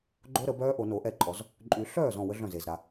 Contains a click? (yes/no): yes